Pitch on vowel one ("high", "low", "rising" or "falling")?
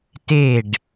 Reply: falling